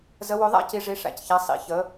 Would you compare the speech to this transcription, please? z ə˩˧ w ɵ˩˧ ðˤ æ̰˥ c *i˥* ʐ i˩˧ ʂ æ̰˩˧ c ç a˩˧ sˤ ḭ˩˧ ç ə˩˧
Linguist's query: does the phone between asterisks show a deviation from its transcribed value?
yes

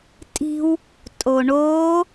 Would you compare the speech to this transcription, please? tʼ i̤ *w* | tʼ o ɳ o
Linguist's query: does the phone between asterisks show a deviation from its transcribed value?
no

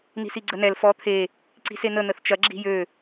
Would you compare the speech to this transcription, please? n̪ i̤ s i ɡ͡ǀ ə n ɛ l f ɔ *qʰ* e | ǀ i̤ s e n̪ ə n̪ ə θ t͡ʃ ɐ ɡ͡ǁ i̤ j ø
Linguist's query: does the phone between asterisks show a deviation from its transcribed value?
yes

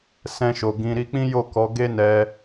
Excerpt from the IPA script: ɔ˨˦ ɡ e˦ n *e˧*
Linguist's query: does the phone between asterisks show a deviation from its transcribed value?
yes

